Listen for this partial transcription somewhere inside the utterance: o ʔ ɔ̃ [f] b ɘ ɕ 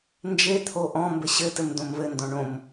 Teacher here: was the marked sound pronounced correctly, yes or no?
no